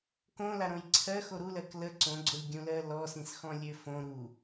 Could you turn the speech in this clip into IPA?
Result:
k õ l a ɾ õ j ǀʰ ɜ x o ɾ u l ɜ k l ə ǀ õ ɡ͡ǀ o lʲ ɡʲ ũ l ɜ l ɔ s ĩ s x ɔ̃ lʲ ø f õ ɾ u

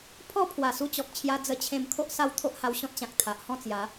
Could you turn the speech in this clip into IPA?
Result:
pʰ ɔ˥˧ pʰ w a˨˩ s u˧ t͡ɕ ɔ˨ k̚ t͡ɕʰ j a˧ d͡z ə˧ t͡ɕʰ ẽ˧ m kʰ o˦ ʔ s a˦ w t̪ʰ o˦ ʔ h a˧ w ɕ ɔ̃˦ t̚ ɕ ã˨ k̚ t̪ʰ a˨ ʔ h ɔ̃˥˧ t͡s j a˨˦

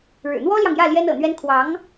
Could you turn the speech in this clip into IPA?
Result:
ɻ ɻ̩˨˩ n̪ w ɔ˥ l j ɑ˨ ŋ j ä˥˩ l j ɛ˥ n ɤ̰˨˩ n̪ ɥ ɛ˥ n kʰ w ɑ˧˥ ŋ

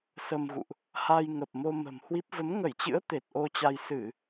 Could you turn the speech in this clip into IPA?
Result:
s ə˧ m ɣ ṵ˧˨ ʔ | h a˧ j ŋ ə˨˩ p̚ m o˧ m ə̤˨˩ m h w i˦˥ p̚ v ə˨˦ m ŋ ə˧˩ j t͡ɕ ɨ̰˧˥ ə̯ t̪ e˨˩ t̚ ʔ o˧ t͡ɕ a˧ j s ɨ˧˩˨

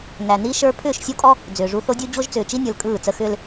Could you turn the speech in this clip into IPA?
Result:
n æ˨ n i˦ ʃ ə˞˦ pʰ ʏː˦˨ ʃ sʲ o˦ kʼ ɔ˦ | d͡z ʏː˨ ʐ u˦ θ o˦ dʲ u˦ d͡ʑ o˦ ʒ t͡s ʏː˨ t͡ʃ i˦ nʲ ə˞˨ l kʼ ɯː˦˨ t͡s ə˦ x ʏː˦ l

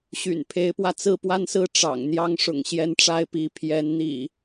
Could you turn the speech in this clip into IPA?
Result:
ɕ y̰˨˩ n pʰ e˨˦ ɪ̯ p w ä˧ t͡s ɹ̩˥˨ p w a˦ n s ɹ̩˥˨ ʈ͡ʂ ɑ̰˨˩ ŋ n̪ j ɑ˦ ŋ ʂ ʊ̰˨˩ ŋ ɕ j ɛ˦ n ʈ͡ʂ a˦ ɪ̯ p i˨˦ pʰ j ɛ˨˦ n n̪ ḭ˨˩

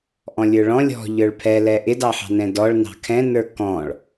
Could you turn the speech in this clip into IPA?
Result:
ʔ ɔ̃ lʲ ə˞ ɭ ɔ̃ lʲ ɔ̤ ʎ ə˞ ɭ pʰ ɛ l ɛ ʔ ɪ d ɑ ħ ɑ̤ n ɛ̃ d ɔ ɭ n ɑ̤ kʰ ɛ̃ n ə˞ k ɔ̃ ɭ

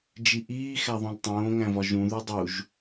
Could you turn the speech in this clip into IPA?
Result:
d͡ʒ i ʔ iː x æ ðˤ õ l tˤ õː ŋ æ̃ v ɒ ʒ ũ ð u dˤ u ʒ

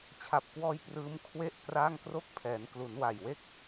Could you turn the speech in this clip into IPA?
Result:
t͡ɕʰ a˨˩ p̚ k w ɔː˧ j p r ɯː˦˥ m kʰ w e˥˩ ʔ k r a˥˩ ŋ k r o˦˥ k̚ pʰ ɛː˩˦ n k l u˩˦ n w a˨˩ j w e˥˩ k̚

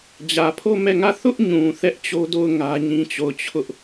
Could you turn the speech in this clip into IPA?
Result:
d͡ʑ ä˨ pʰ o˦˨ m ɛ˦˨ ŋ ä˦˨ θ ʊ˦ ʔ ɲ ũ˨ θ ɛ˦ ʔ t͡ɕ o˦ d o˦˨ ʊ̯ ŋ ä˦ ɲ ĩ˦ t͡ɕ o˦˨ ʊ̯ t͡ɕʰ ʊ˦ ʔ

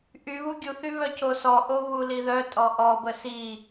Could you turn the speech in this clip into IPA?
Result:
ʔ y β u ɡʲ u θ y β œ c o s ɔ ʔ o β u l i ð œ tʼ ɔ ʔ ɔ b ə s i

